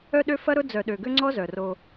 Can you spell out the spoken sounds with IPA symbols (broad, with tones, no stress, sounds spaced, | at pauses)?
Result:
œ˦ ɗ ø˦ f ɐ˦ ɾ ʊ˦ d͡z œ˨ ɗ ø˨ ɡ ø˦ ŋ͡ǀ ɔ˦ z œ˨ r o˦